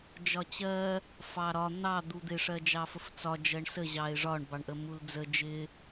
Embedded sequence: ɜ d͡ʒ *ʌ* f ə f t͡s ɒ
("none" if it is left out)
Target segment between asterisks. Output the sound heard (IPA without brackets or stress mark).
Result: ɑ